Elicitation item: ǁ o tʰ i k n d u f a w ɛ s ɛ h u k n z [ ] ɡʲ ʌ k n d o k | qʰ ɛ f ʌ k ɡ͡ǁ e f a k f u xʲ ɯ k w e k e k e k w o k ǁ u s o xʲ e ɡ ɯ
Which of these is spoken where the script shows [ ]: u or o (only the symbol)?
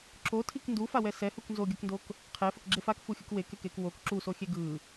o